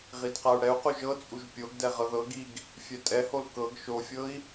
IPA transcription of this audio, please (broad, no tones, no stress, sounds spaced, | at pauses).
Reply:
ʁ i d q a u̯ ɽ ɛ u̯ q u ʒ ɤ t͡sʼ u ʒ pʲ o ɡ d ɛ ʁ ɤ ð ɤ ɡ i ɡ | fʲ ɛ tʼ ɛ h o l k ɤ ɡ ʃ o fʲ ɤ i̯